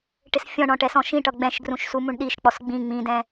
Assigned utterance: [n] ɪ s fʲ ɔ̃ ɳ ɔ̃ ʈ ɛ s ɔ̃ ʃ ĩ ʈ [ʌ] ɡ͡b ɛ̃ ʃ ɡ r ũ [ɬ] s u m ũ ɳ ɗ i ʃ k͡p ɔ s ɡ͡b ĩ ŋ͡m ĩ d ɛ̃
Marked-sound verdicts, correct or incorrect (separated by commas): incorrect, correct, incorrect